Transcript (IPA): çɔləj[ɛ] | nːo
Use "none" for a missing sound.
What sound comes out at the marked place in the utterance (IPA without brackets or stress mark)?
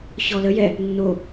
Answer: ɛ